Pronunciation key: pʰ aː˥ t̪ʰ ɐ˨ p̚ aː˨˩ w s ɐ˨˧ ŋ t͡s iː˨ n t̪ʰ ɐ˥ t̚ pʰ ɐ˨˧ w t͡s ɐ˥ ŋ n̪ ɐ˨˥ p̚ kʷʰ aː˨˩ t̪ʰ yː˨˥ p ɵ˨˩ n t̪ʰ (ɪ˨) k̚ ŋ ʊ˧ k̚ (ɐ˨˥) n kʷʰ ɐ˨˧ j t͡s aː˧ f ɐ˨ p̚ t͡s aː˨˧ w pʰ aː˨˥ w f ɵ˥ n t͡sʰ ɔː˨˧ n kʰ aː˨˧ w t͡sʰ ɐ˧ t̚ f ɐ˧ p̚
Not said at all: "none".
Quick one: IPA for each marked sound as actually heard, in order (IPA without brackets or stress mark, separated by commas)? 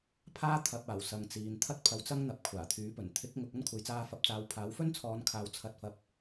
ɪ˨˥, ɐ˥